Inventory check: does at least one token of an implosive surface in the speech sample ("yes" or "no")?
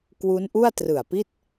no